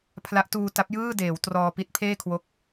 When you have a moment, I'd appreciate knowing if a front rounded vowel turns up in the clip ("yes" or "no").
no